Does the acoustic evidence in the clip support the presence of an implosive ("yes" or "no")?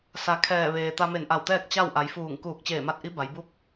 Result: no